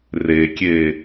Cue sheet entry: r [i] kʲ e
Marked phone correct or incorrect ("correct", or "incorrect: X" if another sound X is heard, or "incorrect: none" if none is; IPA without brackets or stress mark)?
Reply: incorrect: e